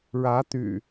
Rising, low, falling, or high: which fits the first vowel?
rising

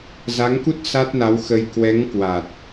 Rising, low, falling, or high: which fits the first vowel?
rising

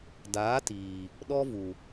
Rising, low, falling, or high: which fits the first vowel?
rising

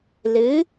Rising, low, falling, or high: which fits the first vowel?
rising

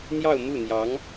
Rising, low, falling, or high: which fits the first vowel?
falling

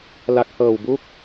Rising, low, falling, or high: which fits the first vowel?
low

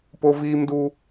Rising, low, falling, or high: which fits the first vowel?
high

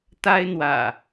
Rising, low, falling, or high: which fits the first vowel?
high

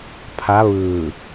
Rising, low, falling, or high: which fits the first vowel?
rising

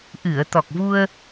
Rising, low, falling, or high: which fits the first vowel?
low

